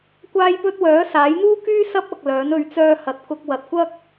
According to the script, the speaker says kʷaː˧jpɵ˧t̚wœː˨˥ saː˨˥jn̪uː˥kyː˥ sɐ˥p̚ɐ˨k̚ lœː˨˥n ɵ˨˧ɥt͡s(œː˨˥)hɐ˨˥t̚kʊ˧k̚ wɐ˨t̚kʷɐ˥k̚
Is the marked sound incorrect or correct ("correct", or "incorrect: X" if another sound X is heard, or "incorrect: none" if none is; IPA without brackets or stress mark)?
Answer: incorrect: œː˧